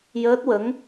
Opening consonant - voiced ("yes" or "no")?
yes